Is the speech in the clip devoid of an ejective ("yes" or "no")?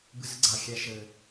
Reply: yes